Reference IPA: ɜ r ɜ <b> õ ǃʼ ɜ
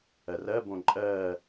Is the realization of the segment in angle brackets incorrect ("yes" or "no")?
no